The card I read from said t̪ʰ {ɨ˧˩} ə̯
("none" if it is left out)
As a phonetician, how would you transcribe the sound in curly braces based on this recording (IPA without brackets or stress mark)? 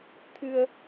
ɨ˧